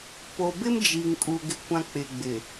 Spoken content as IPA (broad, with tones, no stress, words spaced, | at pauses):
po˨bɪ˦m d͡ʒi˨ŋkʼu˨ ɡɪ˦kʷã˦ k͡pɪ˨ɡ͡bɪ˨